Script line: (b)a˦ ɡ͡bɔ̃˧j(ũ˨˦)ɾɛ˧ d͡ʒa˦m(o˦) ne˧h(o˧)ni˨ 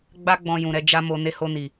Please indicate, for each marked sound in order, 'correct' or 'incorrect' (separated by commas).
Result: incorrect, incorrect, incorrect, correct